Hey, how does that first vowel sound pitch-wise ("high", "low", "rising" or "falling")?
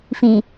low